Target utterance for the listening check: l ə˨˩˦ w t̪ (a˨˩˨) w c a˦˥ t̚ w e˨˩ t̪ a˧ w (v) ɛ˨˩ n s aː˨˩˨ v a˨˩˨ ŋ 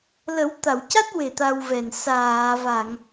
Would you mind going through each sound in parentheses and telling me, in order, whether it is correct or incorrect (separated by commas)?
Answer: correct, correct